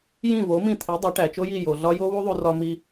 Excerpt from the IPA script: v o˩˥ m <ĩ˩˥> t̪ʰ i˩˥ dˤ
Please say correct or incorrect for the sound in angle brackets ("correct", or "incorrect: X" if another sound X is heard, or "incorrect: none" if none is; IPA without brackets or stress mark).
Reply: incorrect: ĩ˥˩